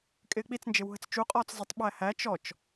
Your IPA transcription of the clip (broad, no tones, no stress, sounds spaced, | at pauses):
kʼ ɪː k͡p i t͡s n d͡ʒ ɪ w ɦ ə t͡s t͡ʃ u qʼ ɔː t͡s zˤ ə tˤ ɓ æ h æ t͡ʃ ɔ t͡ʃ